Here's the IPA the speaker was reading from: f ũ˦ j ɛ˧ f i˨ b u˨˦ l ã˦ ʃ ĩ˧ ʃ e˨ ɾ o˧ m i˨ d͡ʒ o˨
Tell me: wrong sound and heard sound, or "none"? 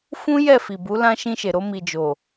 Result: ɛ˧ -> ɛ˦˨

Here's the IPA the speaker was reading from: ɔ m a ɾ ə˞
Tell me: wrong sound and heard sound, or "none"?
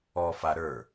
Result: m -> f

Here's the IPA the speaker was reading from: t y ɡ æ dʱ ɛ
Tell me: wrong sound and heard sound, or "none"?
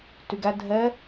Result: none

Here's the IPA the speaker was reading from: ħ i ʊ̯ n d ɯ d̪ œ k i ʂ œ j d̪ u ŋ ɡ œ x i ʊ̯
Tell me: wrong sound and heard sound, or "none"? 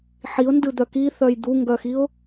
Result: ʂ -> θ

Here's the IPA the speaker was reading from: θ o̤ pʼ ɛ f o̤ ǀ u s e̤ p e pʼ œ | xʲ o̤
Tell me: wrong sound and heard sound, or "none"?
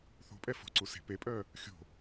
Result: none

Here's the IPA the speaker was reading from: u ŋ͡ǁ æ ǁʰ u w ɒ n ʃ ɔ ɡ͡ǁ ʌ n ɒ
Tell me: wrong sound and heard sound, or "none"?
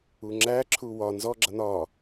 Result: ʃ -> z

